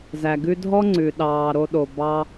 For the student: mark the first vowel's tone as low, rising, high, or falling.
low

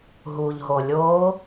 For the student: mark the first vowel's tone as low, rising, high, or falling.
low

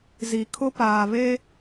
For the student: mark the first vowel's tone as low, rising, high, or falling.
low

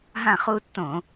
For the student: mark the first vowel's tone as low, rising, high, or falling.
falling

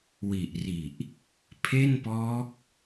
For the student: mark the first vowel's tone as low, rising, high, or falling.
low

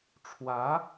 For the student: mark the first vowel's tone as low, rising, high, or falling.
rising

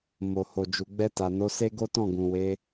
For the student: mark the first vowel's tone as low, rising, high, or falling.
low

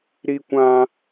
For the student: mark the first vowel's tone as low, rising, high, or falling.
high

